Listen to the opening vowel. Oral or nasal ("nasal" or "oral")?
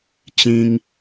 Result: nasal